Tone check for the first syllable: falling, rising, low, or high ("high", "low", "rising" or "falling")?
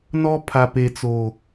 high